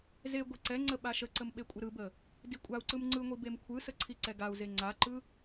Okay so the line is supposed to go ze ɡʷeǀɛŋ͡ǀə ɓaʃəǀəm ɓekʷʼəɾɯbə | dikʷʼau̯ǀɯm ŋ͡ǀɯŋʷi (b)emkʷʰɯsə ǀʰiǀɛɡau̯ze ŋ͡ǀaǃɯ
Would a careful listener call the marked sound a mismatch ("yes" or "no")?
no